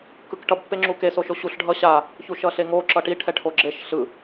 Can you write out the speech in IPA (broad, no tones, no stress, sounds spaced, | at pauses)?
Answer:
k ɯ k ʈ ʌ b pː e ŋ͡ǁ u k e s o ʃ o ɕ u ɬ ɖʱ ʌ ɕ a | ç u ʃ ʌ ɬ e ŋ o ǁ ʌ ʈ i ʈʰ ɛ ʈʰ o ɡ͡ǁ e ʃ ɬ ɯ